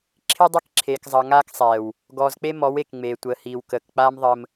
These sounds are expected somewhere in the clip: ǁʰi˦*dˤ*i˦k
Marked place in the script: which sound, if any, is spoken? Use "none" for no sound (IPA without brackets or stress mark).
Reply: dˤ